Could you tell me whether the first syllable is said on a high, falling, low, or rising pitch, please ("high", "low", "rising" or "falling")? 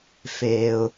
low